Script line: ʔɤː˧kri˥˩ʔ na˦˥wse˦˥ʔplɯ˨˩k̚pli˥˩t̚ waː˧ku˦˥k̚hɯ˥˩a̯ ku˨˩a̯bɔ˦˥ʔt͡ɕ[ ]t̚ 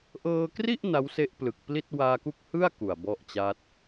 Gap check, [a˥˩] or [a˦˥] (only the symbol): a˦˥